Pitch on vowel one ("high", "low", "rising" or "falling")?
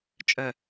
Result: low